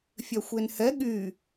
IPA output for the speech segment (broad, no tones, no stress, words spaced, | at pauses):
fʲœxʷenhɛ ɠy